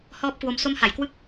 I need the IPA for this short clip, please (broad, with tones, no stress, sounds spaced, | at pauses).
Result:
h ɔː˦˥ p̚ k w o˧ m s o˦˥ m h a˩˦ j k w ɯ˥˩ k̚